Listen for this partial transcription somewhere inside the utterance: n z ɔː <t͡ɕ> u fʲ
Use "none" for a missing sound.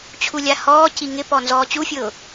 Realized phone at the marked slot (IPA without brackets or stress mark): t͡ɕ